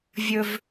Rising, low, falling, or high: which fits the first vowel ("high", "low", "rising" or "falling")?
high